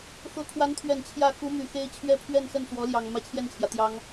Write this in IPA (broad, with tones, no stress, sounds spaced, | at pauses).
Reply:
x ɤ˧˥ kʰ w a˧˥ n t̪ʰ ɥ ɛ˨˩ n t͡ɕʰ j ä˥˩ x u˧˥ m y˨˩ x e˥ ɪ̯ t͡ɕʰ ɥ ɛ˥˧ pʰ ɥ ɛ˥˧ n s ə˥˩ n s w ɔ˧˥ l j ɑ˨˩ ŋ m ä˥ t͡ɕʰ j ɛ˥˩ n t͡ɕʰ j ä˩ t̪ j ɑ˥ ŋ